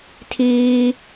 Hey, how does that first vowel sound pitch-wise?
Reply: high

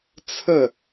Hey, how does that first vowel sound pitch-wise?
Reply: falling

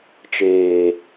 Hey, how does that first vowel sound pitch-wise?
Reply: low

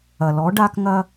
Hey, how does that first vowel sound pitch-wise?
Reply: low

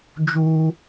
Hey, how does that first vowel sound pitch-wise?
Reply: high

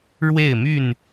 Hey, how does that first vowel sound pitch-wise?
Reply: falling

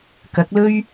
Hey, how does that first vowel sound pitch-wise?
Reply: rising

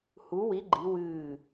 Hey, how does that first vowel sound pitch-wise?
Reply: rising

